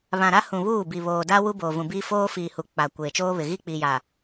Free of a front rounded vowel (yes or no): yes